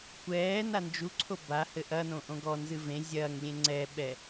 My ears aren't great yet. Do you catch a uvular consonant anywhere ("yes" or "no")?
no